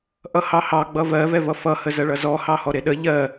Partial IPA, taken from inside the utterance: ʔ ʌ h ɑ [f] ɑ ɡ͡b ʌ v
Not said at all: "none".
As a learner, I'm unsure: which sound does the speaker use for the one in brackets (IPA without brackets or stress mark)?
h